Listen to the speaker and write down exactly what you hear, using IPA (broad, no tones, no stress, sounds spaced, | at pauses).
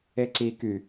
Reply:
e ǀ i k y